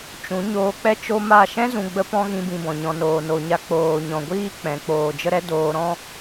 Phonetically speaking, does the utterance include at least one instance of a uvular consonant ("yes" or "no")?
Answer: no